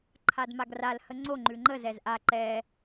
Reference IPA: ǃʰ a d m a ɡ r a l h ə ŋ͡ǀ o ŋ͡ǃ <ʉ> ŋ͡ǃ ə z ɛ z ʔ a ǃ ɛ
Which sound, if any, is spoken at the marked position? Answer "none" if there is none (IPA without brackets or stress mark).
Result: ʉ